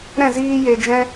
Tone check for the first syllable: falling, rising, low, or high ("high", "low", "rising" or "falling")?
falling